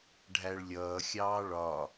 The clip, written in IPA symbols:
ɖʱæɭlʲʌː xʲɑːɭɒ

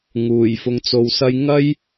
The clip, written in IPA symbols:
ŋuː˨˩jfʊ˧ŋ t͡so˧wsɐ˥j ŋɐ˥j

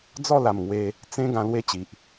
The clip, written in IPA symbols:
d͡zɔ˥˧la˨˩mŋwe˧ | t͡sẽ˧ ɡã˧lwe˥˧t͡ɕi˨ʔ

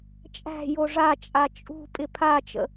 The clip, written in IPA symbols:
t͡ʃʼæ̤jo ʐat͡ʃʼa t͡ʃʼṳ pʼɪpʰat͡ʃə̰

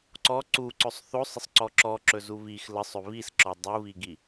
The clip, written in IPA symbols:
ǀɔ ǀuǀɵsˤ θosˤəsˤǀɔ ǁɔǁɵzu βix ləsˤɵ βisǁɔ dˤuβiɡi

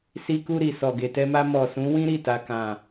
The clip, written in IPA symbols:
si˧ku˧ɾi˨ sɔ˨ɡe˨tɛ˧ma˧ mɔ˨sũ˨˦wĩ˦ ɾi˦˨ta˨kã˨

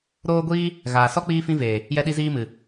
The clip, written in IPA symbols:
ɾoː˦ɡʷiː˦ | ɣaː˨sɔ˦ k͡piː˦fĩ˦veː˨ | jɛ˦ɗi˦ziː˦ mɨ˨

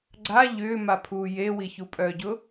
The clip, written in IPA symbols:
ɡ͡ǀa ʎʏːmapʰuː jewiçu pʼœɟʊ

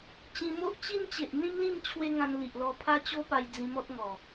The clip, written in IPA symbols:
t͡ɕĩ˧mo˦ʔ t͡ɕi˦nt͡ɕe˨ʔn̪ĩ˦mlĩ˥˧m t͡ɕʰwe˦ŋã˧nli˨ʔlɔ˧ pʰa˦t͡ɕo˦pa˧j d͡zĩ˧mɔ˦t̚ŋɔ˨˩

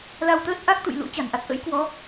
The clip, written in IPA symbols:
la˧wt̪əː˦˥t̚ ʔa˦˥k̚t̪ṵ˧˨j lṵ˧˥ t͡ɕa̤˨˩nʔa˦˥t̚ ʔə̰˧˥j kwɔ˨˦

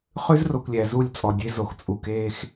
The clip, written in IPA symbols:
χʉ˦zro˨kʷlʲæ˨ zu˦˨lʲt͡sʼɔ˨dʲe˦zo˨x t͡sʼu˨keː˦x

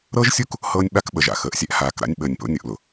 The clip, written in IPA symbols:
ɾɤ˦ʒsʲu˦k | hɤː˦nʲɓa˦k ɓə˨ʒa̰˨xəː˨ʔ sʲɛ˦ʔhaː˨k ɾa̰˦nʲɓəː˨nʲ po̰˦ nʲʊ˨ʔlʊ˨

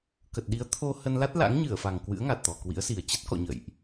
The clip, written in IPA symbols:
kə˨˩t̚ɗi˨˦ə̯t̪ʰo˧ hə˧nla˦˥t̚la̰˧˥ŋ ɲɨ˧˩ə̯fa˨˩ŋkwɨ̰˧˥ə̯ ŋa˨˩t̚t̪ɔ˨˩kwḭ˧˥ə̯si˨˩ə̯ t͡ɕə˦˥t̚kɔ̰˧˨ ɲə̰˧˨jʔ

